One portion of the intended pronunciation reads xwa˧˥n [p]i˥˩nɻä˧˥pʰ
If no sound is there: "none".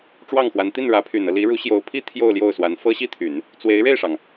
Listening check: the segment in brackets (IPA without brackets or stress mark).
t̪